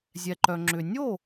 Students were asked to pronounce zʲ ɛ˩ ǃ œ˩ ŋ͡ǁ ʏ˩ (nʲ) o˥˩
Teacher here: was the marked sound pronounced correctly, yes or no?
yes